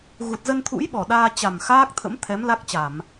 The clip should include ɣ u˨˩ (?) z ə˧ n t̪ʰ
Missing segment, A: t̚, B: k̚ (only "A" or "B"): A